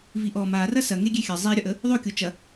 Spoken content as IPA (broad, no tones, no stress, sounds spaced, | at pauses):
v i ʔ ɔ m a r ɐ s ɐ ŋ e ɡʲ e xʲ ɐ zˤ i ɾʲ ɒ ʔ ə | ðˤ o kʲ o t͡ʃ ɐ